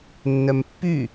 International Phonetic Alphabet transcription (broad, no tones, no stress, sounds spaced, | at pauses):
nː œ m pː y